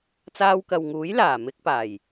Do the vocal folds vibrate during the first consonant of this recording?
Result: no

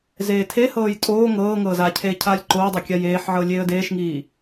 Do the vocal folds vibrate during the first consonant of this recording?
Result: yes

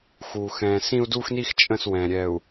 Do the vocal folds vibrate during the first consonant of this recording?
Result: no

